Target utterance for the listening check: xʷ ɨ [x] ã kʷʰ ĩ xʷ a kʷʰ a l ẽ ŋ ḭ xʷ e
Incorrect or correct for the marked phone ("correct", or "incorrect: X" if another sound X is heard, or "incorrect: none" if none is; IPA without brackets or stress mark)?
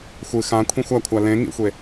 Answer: correct